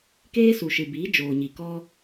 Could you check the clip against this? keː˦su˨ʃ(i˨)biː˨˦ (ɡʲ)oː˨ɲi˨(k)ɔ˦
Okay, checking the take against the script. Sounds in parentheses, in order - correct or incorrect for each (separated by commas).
incorrect, incorrect, correct